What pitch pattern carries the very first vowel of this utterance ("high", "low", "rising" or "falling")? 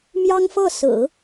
high